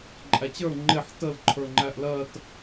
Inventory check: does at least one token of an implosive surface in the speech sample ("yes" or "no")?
no